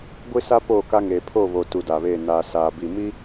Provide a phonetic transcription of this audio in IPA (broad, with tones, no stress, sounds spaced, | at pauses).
ɡʷ i˦ s a˦ p oː˦˨ k a˦ ŋ eː˨ pʰ o˦˨ β o˨ t u˨˦ d a˨ β e˦˨ n aː˨ s aː˨ b i˨ m i˦